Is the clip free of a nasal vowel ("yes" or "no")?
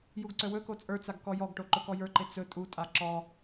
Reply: yes